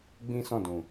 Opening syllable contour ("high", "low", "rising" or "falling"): high